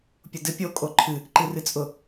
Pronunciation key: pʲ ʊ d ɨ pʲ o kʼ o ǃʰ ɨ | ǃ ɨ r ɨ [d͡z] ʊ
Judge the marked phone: incorrect: t͡sʼ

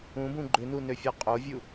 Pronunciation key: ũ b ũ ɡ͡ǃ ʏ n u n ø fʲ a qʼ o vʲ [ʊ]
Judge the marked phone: incorrect: u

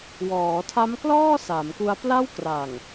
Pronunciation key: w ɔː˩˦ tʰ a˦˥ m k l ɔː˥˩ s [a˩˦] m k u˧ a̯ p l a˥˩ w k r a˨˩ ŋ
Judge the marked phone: correct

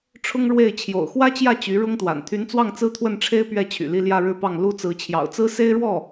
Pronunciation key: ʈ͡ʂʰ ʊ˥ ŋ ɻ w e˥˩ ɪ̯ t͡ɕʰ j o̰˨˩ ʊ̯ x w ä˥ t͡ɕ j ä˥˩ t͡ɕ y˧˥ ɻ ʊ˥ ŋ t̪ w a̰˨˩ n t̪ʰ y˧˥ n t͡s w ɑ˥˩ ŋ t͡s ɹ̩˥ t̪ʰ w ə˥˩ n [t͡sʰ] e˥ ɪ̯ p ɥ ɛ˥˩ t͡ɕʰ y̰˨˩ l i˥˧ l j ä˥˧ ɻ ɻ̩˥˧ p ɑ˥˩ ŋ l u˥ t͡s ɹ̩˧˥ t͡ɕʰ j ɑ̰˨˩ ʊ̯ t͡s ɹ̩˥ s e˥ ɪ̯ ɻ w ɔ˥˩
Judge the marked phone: incorrect: ʈ͡ʂʰ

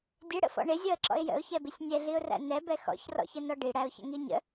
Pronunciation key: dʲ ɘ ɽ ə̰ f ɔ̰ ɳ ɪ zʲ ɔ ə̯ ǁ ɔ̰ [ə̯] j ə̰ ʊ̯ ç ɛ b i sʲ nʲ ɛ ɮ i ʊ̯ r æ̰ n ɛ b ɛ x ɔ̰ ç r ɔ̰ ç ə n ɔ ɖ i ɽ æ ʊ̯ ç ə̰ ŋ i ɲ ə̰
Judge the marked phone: incorrect: ɪ̯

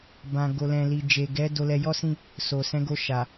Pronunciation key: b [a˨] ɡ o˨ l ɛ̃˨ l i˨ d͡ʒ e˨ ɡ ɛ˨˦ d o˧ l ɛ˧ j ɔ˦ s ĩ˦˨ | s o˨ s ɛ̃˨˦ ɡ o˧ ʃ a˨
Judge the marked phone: incorrect: ã˨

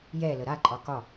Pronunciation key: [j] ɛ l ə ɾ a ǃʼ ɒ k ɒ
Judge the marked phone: correct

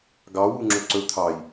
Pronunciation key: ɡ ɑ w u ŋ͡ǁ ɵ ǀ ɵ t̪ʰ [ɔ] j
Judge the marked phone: incorrect: ɑ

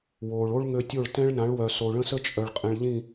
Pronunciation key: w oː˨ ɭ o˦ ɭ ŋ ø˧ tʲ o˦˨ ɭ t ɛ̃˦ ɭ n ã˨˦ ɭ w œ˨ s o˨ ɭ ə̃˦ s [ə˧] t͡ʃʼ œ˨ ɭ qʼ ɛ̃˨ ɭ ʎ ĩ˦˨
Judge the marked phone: incorrect: ə˦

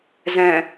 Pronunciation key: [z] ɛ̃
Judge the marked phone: correct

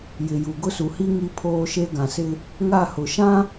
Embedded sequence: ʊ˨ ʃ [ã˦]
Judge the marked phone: correct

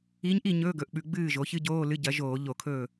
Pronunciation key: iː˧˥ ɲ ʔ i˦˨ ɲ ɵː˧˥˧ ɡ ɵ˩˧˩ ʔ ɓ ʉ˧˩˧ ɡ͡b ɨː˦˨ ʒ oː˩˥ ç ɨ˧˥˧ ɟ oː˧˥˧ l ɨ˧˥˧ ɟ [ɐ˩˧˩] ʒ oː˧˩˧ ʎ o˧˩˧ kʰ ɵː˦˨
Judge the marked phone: incorrect: ɐ˩˥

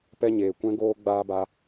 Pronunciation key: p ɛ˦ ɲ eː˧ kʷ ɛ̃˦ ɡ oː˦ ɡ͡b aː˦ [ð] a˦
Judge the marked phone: incorrect: b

